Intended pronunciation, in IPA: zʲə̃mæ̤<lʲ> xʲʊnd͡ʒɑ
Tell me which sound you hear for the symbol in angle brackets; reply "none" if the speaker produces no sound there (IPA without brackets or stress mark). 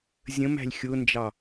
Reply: lʲ